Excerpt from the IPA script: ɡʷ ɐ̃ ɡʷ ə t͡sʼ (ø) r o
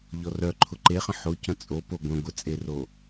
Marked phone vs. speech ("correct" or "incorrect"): incorrect